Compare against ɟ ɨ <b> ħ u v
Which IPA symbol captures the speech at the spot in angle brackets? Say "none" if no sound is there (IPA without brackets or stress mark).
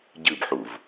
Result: b